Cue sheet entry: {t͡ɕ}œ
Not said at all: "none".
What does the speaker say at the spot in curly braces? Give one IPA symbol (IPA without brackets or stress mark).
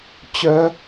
t͡ɕ